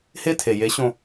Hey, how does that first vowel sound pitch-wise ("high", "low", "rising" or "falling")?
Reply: high